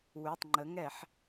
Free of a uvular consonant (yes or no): yes